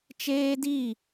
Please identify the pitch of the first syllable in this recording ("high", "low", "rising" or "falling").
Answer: high